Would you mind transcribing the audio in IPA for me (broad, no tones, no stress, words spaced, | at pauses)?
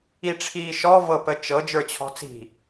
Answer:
iʈ͡ʂʰiːʃɔ vɤpət͡ʃɤ d͡ʒə˞t͡ɕʰɔ̤t͡si̤